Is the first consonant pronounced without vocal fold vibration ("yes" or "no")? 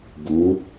no